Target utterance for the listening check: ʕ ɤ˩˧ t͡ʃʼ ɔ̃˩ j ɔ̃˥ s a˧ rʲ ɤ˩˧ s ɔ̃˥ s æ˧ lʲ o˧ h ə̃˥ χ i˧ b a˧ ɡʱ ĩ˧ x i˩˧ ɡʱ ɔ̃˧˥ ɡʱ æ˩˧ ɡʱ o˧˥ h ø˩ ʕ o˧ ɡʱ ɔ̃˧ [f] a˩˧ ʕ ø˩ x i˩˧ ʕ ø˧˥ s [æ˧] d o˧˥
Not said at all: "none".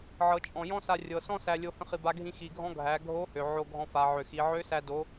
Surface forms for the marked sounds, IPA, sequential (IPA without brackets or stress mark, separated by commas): f, æ˧